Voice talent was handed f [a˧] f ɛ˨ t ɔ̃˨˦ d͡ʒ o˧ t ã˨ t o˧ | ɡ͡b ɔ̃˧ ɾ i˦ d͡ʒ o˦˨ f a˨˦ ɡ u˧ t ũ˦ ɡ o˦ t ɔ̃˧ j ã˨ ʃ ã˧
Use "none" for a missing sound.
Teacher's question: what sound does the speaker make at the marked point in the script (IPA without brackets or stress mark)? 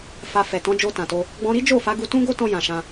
a˧